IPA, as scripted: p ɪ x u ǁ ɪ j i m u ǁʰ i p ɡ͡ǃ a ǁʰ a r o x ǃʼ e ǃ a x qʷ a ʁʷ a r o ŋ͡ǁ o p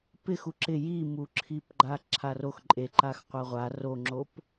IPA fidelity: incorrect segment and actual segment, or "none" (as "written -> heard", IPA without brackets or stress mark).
none